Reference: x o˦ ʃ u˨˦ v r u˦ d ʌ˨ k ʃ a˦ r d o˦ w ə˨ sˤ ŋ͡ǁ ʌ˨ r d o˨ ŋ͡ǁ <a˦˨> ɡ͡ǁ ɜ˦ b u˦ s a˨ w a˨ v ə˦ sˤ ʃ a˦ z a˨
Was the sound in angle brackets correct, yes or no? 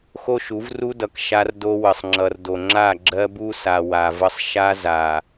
yes